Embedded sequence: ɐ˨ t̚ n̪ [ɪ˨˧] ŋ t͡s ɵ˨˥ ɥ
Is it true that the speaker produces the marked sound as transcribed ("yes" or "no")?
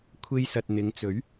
yes